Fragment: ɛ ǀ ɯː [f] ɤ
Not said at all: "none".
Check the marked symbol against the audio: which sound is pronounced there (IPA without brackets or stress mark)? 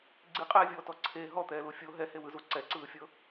fʲ